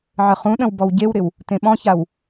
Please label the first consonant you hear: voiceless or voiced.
voiced